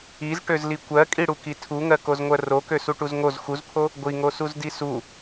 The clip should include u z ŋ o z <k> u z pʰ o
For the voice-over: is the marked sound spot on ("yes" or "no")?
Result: no